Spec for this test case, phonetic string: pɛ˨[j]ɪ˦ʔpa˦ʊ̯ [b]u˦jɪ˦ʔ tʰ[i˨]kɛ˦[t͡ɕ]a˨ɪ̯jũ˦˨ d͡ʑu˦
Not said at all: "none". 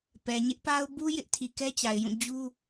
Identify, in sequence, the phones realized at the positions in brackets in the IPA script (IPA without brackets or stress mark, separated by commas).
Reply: ɲ, b, i˨, t͡ɕ